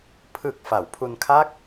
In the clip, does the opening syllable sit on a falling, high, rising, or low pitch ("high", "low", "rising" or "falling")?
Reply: low